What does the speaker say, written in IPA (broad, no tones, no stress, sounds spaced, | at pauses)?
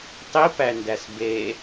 tˤ i p æ n d æ s b e